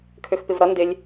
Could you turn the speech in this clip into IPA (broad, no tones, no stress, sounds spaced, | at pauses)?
kʰ ø x p ɪ v ɾ ʌ n d ɪ lʲ